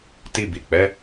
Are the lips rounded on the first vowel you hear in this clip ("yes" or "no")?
no